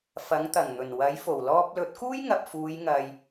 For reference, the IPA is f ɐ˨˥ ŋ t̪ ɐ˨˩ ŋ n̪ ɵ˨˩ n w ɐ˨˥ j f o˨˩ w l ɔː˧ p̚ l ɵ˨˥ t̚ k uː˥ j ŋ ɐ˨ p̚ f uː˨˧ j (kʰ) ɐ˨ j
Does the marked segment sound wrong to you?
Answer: yes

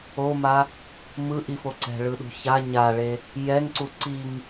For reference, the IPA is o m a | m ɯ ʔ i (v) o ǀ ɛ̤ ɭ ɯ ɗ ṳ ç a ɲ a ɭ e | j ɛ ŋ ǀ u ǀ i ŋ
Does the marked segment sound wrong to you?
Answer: yes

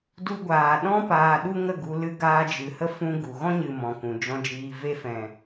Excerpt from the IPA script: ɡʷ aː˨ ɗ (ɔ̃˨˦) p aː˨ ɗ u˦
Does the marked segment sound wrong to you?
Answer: yes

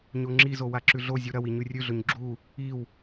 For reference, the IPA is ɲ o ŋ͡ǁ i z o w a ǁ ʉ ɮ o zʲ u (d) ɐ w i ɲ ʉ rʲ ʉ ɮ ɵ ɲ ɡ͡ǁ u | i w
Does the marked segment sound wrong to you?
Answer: yes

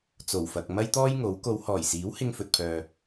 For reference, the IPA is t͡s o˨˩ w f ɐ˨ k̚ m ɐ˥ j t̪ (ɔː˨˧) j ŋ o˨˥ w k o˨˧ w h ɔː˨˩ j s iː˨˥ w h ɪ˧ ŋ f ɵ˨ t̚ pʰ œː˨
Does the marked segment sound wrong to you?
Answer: yes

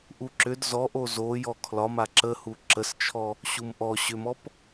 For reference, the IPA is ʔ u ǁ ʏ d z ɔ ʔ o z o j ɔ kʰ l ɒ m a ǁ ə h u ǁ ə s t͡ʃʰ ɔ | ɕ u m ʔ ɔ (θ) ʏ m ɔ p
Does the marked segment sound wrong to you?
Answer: yes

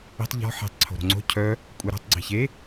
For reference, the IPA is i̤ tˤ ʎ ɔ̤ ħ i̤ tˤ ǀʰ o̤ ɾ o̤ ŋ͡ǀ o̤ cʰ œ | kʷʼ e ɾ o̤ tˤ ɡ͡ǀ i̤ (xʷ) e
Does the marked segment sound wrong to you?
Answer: yes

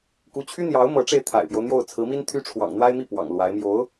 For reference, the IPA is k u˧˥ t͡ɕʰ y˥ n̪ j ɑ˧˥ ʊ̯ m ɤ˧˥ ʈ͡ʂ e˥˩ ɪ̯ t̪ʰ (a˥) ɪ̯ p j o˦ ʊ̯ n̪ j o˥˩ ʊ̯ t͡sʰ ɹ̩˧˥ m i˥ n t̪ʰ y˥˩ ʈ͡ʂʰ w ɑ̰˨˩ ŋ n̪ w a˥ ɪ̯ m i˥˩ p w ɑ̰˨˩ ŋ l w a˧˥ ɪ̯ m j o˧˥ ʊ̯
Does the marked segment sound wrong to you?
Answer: yes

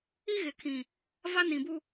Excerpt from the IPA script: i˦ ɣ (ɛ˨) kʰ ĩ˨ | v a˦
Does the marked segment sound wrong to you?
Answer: yes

